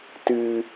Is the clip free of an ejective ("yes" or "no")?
yes